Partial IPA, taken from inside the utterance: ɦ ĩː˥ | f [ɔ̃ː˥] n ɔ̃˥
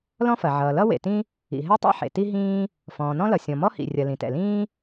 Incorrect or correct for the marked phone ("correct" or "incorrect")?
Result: incorrect